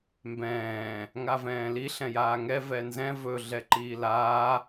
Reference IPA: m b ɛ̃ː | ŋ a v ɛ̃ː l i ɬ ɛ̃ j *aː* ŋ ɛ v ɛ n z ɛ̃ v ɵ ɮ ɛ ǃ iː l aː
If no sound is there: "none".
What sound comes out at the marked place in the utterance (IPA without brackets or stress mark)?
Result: aː